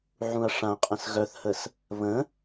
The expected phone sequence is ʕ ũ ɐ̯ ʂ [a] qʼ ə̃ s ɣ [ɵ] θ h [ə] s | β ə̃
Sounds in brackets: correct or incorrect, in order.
incorrect: ã, incorrect: œ, correct

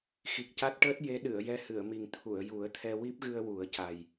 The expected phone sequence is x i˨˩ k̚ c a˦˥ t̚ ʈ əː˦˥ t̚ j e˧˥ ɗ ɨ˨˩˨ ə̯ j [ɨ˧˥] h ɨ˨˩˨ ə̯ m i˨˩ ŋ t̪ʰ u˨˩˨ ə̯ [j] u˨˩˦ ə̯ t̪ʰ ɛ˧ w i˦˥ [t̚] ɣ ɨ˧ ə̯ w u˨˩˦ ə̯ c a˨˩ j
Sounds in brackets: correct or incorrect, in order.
incorrect: ɛ˧˥, correct, incorrect: p̚

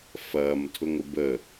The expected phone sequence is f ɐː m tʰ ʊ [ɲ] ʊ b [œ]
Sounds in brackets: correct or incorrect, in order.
incorrect: ŋ, incorrect: ə

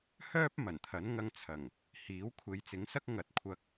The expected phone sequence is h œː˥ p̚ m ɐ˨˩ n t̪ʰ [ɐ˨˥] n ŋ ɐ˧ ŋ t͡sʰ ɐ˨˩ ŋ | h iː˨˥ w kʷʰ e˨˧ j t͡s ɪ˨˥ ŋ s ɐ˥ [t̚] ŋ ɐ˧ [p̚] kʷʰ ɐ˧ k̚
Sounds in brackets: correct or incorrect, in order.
correct, incorrect: k̚, incorrect: t̚

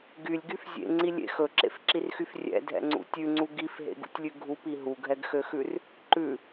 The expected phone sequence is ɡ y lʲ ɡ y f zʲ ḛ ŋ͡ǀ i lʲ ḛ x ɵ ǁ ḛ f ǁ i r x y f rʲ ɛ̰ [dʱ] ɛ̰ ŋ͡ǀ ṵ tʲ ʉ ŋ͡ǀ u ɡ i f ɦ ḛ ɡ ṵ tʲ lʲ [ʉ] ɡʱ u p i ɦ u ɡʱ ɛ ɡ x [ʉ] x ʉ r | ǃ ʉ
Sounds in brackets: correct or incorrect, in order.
correct, correct, incorrect: ø

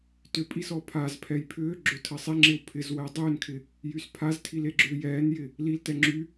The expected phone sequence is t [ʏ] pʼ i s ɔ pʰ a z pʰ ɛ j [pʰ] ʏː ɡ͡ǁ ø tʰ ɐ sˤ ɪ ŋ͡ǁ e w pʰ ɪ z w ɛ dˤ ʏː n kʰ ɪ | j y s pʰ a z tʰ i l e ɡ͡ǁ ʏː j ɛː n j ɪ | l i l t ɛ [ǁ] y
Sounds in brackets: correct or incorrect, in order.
correct, correct, incorrect: ŋ͡ǁ

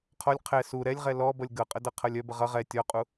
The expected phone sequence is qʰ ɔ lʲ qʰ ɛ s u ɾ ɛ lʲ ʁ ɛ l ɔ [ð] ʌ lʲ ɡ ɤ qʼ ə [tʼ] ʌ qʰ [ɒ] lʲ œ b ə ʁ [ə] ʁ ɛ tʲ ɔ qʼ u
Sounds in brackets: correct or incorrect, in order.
incorrect: b, incorrect: d, incorrect: ʌ, incorrect: ʌ

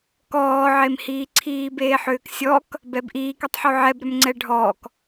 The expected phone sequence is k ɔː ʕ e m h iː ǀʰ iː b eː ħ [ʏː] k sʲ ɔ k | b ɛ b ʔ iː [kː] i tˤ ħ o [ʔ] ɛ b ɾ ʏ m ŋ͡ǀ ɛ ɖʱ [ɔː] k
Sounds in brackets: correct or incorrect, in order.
correct, incorrect: k, incorrect: ʕ, correct

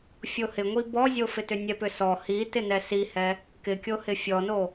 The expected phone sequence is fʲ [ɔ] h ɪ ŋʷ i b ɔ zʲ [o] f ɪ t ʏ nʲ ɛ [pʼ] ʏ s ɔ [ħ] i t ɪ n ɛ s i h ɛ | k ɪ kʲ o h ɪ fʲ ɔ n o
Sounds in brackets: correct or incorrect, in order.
incorrect: o, correct, incorrect: p, incorrect: h

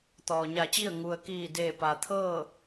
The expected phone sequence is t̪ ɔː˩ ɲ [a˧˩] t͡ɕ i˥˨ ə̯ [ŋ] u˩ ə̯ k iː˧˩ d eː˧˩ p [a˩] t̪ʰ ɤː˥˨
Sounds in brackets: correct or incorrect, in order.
correct, correct, correct

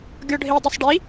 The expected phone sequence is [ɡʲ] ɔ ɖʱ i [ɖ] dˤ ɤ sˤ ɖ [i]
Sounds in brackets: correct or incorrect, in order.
correct, incorrect: none, correct

